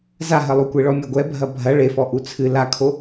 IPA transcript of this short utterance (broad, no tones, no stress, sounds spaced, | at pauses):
z a ɦ ɐ lˠ u kʷ e ɭ ɔ mʲ ɛ ɡʷ ɛ bʱ ɐ bʱ ɐ ɭ e f ɔ ʔ u t͡sʰ ɨ l a kʰ o